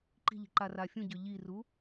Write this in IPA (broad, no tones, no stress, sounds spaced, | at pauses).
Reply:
ǃ i̤ ʎ i̤ ǃ a r a fʲ ũ ɟ ʏ ʎ i r u